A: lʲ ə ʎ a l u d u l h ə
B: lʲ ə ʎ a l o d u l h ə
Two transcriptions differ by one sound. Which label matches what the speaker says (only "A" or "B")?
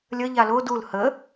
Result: B